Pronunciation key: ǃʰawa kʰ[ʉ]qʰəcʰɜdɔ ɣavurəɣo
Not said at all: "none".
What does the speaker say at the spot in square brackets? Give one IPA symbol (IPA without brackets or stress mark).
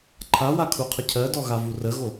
u